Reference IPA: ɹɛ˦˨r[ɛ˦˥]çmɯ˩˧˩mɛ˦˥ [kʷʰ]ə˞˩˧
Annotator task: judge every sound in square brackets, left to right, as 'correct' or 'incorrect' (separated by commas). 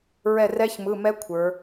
correct, correct